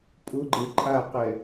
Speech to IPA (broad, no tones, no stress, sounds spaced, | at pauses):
pʼ ʊ ɡ͡ǃ e ǃʼ a q ɛ